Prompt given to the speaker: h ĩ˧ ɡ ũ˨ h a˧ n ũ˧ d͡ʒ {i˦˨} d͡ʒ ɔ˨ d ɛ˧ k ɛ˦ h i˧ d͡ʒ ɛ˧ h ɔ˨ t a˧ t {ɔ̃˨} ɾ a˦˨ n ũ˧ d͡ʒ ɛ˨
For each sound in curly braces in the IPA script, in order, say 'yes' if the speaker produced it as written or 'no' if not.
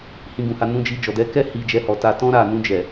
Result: no, no

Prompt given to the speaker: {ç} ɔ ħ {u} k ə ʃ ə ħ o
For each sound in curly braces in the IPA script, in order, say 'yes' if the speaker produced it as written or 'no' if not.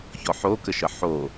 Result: yes, no

